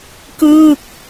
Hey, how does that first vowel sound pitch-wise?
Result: falling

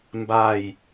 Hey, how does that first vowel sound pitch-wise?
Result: falling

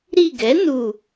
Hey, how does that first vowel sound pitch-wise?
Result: falling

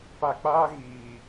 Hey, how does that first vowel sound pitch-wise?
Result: low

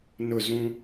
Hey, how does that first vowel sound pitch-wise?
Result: falling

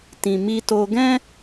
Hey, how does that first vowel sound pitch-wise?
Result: low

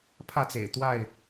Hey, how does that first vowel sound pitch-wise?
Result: falling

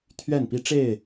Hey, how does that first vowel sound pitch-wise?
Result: falling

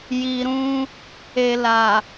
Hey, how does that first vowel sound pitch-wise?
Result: low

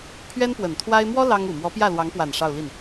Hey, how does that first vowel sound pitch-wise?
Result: high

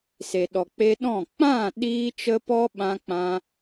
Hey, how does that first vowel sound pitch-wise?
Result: low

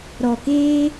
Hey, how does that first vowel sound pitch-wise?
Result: low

